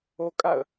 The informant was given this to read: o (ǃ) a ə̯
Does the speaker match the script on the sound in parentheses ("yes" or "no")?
no